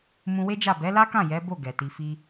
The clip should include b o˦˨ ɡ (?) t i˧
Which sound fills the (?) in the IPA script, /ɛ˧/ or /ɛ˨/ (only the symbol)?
ɛ˨